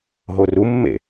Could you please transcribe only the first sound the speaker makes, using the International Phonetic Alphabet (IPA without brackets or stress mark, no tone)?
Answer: ɦ